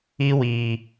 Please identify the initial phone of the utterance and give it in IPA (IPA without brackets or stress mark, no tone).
i